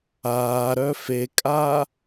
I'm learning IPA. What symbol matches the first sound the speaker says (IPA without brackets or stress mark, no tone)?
aː